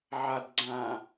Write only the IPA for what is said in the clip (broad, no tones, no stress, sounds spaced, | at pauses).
ʕ a d ɡ͡ǀ ã